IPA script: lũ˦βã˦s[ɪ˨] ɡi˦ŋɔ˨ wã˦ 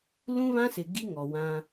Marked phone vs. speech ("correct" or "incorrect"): correct